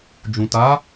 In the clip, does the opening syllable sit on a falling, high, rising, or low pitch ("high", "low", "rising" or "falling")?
low